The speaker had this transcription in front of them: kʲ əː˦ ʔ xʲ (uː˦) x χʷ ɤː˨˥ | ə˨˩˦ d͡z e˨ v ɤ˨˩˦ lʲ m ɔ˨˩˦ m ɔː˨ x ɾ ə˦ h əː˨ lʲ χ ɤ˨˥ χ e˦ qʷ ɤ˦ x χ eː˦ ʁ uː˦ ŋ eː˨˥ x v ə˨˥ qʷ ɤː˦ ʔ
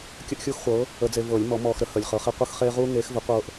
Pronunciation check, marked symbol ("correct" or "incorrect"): correct